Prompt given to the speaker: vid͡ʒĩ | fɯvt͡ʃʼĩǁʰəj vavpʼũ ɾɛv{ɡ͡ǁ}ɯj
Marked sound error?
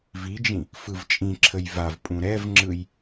yes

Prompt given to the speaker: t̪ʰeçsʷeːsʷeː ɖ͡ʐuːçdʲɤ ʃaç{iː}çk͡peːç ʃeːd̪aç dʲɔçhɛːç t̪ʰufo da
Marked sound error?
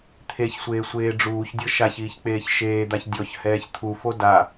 no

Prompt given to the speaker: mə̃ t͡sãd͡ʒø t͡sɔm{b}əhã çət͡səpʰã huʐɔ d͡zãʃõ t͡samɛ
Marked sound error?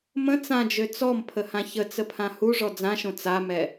yes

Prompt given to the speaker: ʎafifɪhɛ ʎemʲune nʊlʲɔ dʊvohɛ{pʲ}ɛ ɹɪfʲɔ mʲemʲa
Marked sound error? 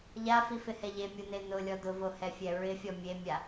yes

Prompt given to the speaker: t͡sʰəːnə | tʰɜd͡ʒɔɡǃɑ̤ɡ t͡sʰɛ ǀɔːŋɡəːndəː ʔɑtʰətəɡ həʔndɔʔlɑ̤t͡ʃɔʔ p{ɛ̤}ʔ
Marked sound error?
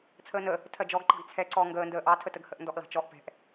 no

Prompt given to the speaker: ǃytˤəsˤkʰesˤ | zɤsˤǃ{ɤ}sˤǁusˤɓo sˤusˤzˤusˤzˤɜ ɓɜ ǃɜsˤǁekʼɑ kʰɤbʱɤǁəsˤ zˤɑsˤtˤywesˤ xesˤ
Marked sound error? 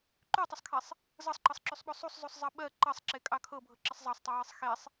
no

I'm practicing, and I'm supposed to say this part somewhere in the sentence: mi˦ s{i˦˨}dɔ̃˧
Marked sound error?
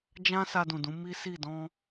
no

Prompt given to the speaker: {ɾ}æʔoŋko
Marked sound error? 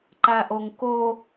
yes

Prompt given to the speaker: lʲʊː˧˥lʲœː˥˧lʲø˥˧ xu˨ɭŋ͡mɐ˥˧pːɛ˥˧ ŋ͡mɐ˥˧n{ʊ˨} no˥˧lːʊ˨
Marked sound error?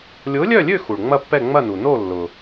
yes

